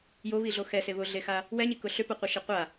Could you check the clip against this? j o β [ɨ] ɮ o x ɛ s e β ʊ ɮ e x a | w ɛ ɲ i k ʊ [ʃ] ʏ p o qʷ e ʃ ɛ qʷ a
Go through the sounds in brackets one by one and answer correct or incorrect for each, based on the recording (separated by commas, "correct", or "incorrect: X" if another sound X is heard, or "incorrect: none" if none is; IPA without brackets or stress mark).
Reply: incorrect: i, incorrect: ɬ